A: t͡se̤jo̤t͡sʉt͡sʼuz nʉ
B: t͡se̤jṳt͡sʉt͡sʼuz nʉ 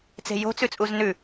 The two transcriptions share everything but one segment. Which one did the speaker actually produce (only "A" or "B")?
A